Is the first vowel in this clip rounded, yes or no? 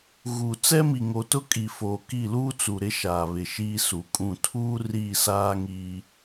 yes